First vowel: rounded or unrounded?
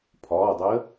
rounded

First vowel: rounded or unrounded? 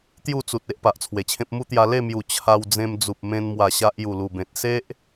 rounded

